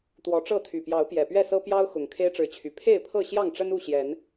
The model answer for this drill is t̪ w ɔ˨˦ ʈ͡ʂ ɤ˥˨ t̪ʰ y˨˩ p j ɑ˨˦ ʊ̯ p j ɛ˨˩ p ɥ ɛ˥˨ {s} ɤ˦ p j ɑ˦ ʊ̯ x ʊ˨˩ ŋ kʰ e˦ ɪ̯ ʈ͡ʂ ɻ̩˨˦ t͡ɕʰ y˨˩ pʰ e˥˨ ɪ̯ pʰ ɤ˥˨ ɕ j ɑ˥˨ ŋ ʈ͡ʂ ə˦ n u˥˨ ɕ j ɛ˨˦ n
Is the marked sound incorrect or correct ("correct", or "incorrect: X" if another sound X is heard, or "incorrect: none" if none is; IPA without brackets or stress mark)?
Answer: correct